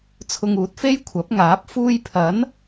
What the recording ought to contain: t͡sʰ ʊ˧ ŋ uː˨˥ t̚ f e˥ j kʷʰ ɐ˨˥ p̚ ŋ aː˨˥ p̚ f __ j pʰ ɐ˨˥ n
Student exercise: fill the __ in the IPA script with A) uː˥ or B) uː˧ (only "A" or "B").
B